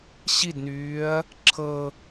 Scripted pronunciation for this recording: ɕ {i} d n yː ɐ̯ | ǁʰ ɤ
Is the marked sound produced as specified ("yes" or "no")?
yes